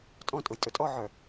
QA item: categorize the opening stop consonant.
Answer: ejective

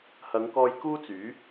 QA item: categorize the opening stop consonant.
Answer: plain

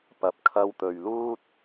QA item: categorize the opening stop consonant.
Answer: plain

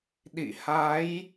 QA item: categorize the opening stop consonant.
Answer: implosive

